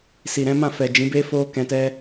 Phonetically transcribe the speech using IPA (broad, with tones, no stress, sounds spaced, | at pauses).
s i˨ ɾ ɛ̃˨˦ m ã˦˨ f ɛ˨ d͡ʒ ĩ˨˦ b e˦ f o˦ k ɛ̃˧ t ɛ˦